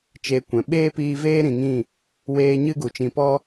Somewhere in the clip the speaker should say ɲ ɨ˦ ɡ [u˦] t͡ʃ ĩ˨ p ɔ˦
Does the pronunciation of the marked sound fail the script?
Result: yes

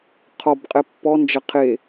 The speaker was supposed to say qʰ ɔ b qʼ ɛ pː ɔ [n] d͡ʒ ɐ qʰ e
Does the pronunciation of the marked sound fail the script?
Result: no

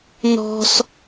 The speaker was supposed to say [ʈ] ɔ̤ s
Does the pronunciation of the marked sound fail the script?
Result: yes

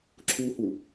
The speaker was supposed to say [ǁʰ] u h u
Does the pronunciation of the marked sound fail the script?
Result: no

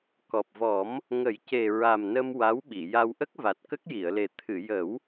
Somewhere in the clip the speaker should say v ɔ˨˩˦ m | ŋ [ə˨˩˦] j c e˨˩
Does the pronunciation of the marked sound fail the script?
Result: no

